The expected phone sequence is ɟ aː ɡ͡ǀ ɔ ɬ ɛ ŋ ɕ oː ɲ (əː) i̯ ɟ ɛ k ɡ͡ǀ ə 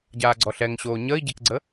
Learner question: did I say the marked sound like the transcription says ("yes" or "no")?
yes